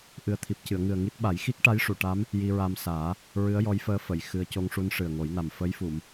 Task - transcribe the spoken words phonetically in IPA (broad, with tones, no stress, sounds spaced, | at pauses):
ʔ ɨ˨˩ ə̯ t̪ʰ i˨˩ p̚ c ɨ˨˩˨ ə̯ ŋ ɨ˨˩ ə̯ ŋ i˦˥ t̚ ɓ a˨˩˦ j x i˦˥ k̚ ʈ a˧˥ j ʂ u˨˩˨ ʈ a˧˥ m | j i˧ ɹ a˧ m s aː˨˩˦ | ɹ ɨ˧˥ ə̯ j ɔ˧˥ j f əː˧ f ə˨˩˨ j x ɨ˧ ə̯ c o˧ ŋ ʂ u˧ n ʂ ɨ˨˩ ə̯ ŋ o˨˩˦ j n a˨˩ m f ə˧˥ j f u˨˩˨ m